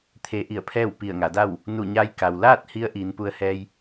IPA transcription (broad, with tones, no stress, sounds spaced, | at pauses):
t̪ʰ e˧ ʔ i˧˩ ə̯ pʰ ɛː˥˨ w p i˧˩ ə̯ ŋ a˩˧ d a˥˨ w | n u˧˩ ɲ a˧ j k a˩ w l aː˥˨ t̚ h i˧˥ ə̯ ʔ iː˩˧ n p u˧ ə̯ h ɛː˧ j